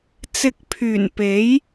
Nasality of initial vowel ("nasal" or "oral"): oral